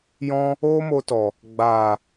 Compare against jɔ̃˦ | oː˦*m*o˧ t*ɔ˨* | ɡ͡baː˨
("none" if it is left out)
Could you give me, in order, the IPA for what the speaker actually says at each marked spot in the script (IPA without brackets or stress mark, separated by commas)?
m, ɔ˨